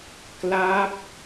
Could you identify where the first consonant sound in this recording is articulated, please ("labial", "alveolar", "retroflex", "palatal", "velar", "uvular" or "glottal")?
velar